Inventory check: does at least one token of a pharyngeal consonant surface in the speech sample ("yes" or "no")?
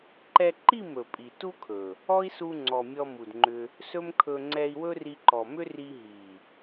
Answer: no